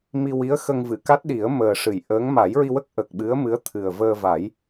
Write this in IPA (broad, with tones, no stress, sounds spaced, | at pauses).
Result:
m i˧ w i˧˥ ə̯ x ə˧ ŋ v ɨ˨˩˨ k a˦˥ t̚ ɗ i˨˩˦ ə̯ m əː˨˩ ʂ ɨ˨˩˨ j ʔ əː˧˥ ŋ m a˨˩˦ j ɹ i˧ w ə˦˥ k̚ ʔ ə˨˩ k̚ ɓ ɨ˧˥ ə̯ m ɨ˧˥ ə̯ t̪ʰ ɨ˨˩ ə̯ v əː˧ v a˨˩˦ j